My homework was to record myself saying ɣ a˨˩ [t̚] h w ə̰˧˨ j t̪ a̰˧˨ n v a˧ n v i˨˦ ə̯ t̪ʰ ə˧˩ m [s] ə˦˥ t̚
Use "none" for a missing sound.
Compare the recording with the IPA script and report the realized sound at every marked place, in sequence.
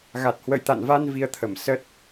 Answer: t̚, s

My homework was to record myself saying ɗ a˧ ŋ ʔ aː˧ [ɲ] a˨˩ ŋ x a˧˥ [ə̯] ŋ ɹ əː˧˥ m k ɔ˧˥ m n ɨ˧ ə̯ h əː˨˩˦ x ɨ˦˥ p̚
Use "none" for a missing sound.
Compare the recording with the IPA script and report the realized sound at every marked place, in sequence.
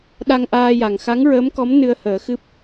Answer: j, none

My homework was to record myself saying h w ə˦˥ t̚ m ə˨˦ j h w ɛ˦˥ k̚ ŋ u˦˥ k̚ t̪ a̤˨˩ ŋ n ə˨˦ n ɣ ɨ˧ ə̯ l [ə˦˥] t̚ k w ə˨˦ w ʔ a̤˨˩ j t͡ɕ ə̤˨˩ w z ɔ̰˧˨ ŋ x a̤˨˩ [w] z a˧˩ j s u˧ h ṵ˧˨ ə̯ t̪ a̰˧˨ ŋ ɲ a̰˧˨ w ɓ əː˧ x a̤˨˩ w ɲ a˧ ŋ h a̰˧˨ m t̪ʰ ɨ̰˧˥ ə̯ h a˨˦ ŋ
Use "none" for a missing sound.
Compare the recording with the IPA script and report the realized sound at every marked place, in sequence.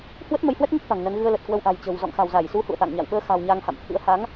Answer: ə˨˩, w

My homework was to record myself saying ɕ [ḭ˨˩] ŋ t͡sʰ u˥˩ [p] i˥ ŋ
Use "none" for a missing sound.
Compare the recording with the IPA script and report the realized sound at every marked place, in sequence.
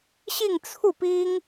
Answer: i˥˧, p

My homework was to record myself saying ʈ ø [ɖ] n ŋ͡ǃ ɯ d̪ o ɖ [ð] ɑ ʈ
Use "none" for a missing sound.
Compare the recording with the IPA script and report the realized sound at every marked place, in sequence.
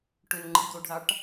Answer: none, ð

